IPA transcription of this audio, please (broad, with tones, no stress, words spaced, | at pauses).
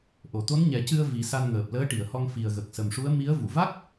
ʔo˨˩˨t̪o˧˥nɲɛ˨˩˦cɨ˧ə̯ vi˨˩˦sa˧n ŋəː˨˩p̚ləː˧˥ʈi˨˩˨ə̯hɔ˧ŋ fi˨˩ə̯ɣə˨˩k̚sə˨˩mʂu˧˥ə̯ mi˧˥ə̯ vu˨˩˨va˦˥k̚